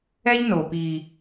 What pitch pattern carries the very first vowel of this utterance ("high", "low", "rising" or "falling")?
high